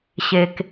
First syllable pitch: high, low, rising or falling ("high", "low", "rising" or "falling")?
low